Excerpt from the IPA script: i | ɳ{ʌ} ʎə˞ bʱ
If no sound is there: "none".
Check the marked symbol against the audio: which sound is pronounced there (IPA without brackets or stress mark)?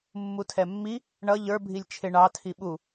ʌ